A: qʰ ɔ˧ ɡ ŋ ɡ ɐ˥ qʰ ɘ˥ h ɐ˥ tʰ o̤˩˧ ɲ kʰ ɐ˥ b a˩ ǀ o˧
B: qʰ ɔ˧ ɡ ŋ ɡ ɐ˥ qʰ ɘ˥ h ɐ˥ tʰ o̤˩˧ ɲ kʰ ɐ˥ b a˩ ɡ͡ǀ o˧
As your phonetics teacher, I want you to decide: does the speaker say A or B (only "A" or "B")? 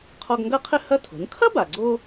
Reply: B